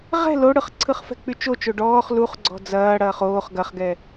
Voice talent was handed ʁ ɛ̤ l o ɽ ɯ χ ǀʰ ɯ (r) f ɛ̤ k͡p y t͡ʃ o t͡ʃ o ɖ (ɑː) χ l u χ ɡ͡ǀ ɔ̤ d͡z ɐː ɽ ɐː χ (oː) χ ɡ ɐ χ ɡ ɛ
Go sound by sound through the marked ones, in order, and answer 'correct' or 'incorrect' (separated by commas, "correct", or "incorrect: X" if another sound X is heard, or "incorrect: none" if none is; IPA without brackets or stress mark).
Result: incorrect: χ, incorrect: ɔː, correct